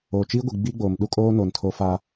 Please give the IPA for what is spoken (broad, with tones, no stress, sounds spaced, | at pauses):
oː˨ t͡ʃ iː˦ ɡʷ i˨ ɡ͡b iː˦ ɡ͡b oː˨ m ɗ u˦ kʼ oː˦ n oː˨ n tʰ oː˦ f aː˦